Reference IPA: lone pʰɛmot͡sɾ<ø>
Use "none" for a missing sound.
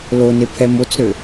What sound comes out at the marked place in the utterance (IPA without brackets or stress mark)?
ø